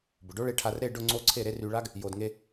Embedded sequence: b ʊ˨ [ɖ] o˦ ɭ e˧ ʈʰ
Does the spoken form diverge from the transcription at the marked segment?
no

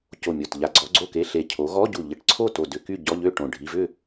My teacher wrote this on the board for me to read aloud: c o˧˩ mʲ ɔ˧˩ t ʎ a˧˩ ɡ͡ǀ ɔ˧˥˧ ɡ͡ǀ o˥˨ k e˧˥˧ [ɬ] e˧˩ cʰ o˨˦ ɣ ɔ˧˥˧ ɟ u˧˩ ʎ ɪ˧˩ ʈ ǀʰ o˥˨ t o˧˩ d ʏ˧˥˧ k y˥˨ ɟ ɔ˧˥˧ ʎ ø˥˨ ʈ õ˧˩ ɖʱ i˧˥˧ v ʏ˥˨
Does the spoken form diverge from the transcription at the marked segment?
no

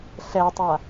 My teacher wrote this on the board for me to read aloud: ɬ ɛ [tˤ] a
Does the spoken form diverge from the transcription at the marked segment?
no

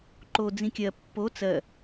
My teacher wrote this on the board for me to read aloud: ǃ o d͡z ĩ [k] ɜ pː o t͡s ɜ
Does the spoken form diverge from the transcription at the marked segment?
yes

